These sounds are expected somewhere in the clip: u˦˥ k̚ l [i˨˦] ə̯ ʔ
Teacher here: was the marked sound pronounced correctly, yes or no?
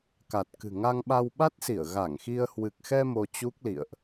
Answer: no